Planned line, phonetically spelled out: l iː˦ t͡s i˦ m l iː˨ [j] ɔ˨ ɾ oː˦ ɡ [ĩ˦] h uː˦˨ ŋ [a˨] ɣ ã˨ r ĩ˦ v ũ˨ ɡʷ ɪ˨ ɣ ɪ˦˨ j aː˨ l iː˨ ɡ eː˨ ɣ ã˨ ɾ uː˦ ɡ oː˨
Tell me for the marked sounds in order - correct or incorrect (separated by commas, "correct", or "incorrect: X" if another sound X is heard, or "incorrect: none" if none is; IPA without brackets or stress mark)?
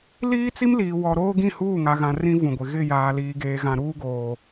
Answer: incorrect: w, incorrect: ĩ˦˨, correct